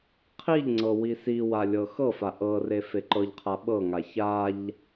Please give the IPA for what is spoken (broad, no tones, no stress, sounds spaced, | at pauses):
qʰ i ʎ ŋ͡ǀ ɤ w i s i w a lʲ ɤ x ɤ f a ʔ ɤ r e f e ǃ ɤ ʎ qʰ a ɓ ɤ ŋ a ç a ʎ